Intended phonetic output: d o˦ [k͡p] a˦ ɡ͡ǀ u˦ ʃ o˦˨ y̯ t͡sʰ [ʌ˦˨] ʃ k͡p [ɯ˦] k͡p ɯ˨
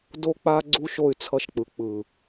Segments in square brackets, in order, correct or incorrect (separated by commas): correct, correct, incorrect